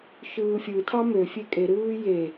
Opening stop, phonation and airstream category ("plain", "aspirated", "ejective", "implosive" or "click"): aspirated